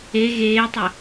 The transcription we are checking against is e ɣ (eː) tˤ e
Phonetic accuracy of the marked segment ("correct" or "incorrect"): correct